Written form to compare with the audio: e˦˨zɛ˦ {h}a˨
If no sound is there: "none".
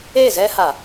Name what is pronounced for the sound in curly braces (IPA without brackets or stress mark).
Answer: h